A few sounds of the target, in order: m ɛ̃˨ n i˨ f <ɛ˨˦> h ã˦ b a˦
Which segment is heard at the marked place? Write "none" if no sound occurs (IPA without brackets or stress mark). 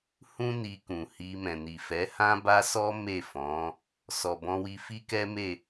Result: ɛ˨˦